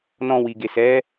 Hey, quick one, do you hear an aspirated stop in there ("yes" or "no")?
no